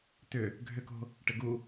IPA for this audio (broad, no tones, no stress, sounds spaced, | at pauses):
t ʏ | ɡʱ ʏ k o̤ | ʈ ɪ ɡ u